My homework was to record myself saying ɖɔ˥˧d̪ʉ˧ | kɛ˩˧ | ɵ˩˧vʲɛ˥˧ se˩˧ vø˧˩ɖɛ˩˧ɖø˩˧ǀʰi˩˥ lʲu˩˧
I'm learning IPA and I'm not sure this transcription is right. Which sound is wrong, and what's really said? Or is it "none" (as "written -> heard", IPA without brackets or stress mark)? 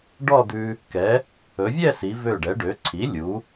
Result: e˩˧ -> i˩˧